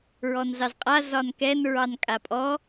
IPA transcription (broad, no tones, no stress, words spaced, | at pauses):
ɹɔnzɑzqʼa zɒnkɛn ɹɑnkʼapʼɔ